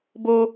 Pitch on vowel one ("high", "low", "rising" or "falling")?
high